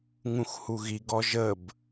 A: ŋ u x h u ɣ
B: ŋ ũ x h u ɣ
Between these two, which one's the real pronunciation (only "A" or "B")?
B